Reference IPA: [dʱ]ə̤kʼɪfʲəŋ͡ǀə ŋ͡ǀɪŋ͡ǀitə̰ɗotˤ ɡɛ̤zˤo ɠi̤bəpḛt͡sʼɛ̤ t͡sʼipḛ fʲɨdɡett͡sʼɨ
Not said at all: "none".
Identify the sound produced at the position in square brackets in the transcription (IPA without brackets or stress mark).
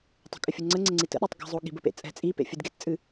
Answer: tˤ